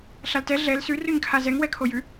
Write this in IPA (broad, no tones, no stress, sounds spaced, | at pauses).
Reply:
ɬ a l t ɛ ɮ ɛ l s ʉ r ʉ ɲ kʰ a z ɛ ŋ w ɛ kʰ o j ʉ